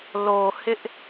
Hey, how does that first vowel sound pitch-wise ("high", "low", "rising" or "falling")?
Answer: low